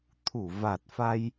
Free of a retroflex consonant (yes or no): yes